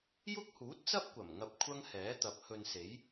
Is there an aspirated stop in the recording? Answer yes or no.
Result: yes